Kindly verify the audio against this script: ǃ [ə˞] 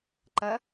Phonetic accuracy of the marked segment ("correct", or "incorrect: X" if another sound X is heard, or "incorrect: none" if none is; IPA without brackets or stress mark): incorrect: ɐ